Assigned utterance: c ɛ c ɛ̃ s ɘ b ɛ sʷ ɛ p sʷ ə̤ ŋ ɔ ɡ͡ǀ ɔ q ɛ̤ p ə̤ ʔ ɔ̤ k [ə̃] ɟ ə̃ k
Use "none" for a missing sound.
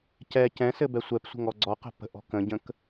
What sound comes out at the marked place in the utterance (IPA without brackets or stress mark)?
ə̃